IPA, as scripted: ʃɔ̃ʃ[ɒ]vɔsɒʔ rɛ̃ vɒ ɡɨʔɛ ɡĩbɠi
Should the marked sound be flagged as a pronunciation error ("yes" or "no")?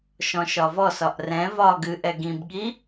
no